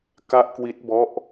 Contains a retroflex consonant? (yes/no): no